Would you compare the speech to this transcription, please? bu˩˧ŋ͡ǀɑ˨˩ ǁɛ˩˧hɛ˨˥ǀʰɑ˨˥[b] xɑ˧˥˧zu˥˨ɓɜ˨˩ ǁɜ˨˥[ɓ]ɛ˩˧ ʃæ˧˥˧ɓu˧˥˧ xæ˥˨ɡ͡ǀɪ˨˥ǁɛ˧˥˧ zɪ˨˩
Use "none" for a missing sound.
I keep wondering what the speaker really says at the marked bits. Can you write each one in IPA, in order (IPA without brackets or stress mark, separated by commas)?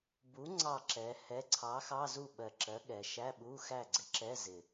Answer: none, ɠ